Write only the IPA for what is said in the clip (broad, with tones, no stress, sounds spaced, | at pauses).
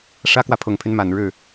ʂ ä˥ k w ä˨ pʰ ʊ˨˩ ŋ pʰ y˦ n m a˨˩ n ɻ ɻ̩˥˩